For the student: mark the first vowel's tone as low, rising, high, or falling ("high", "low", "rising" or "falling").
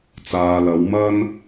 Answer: low